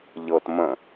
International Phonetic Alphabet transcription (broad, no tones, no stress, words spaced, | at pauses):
ʎɤt mə̃